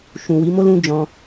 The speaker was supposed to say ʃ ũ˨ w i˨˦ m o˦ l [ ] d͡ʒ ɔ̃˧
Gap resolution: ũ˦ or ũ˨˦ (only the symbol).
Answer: ũ˦